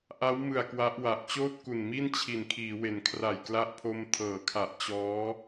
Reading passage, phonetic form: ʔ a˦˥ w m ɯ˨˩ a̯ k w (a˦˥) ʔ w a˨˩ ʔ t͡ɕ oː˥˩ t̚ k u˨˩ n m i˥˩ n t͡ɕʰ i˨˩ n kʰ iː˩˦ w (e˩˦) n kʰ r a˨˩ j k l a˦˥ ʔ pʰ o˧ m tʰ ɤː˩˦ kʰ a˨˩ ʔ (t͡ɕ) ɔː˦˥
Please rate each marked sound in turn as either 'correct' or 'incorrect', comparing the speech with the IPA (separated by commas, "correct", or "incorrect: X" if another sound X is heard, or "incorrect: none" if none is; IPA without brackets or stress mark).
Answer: correct, correct, correct